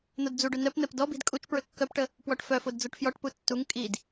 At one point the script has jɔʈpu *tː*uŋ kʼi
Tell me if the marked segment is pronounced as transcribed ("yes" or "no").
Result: yes